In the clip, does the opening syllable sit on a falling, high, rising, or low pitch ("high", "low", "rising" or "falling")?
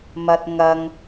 high